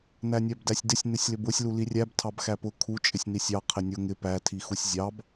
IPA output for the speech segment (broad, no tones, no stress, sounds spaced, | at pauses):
n æ nʲ æ b d æ sʲ d ɪ sʲ n ɪ sʲ l ɪ b ʊ sʲ l u l i rʲ æ b tʰ ɑ b x æ p ʊ kʰ u t͡ʃʼ ɪ sʲ n i sʲ ɑ qʰ ɪ nʲ ʊ ŋ ɪ p æ tʰ i x u sʲ zʲ ɑ b